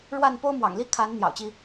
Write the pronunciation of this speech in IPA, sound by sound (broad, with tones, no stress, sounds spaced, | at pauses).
ɻ w a˥˨ n p o˦ ʊ̯ m w ɑ̰˨˩ ŋ l i˦ kʰ a˨˦ n n̪ j ɑ̰˨˩ ʊ̯ t͡ɕ i˦